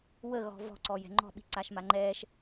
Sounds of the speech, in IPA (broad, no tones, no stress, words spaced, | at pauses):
wə ɣɔ̤vɔ̤ ǀɔjɛ̤ŋ͡ǃɔ̤ɓi̤ ǀaʃmaŋ͡ǃɛːʃ